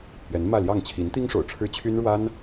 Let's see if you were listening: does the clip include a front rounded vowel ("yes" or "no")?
yes